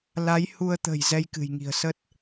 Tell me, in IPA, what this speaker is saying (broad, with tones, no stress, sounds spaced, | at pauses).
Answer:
l a˨˦ j h u˧ ə̯ t̪ ə̤˨˩ j z ɛ˧ j k ɨ̤˨˩ j ŋ i̤˨˩ ə̯ s ə˦˥ t̚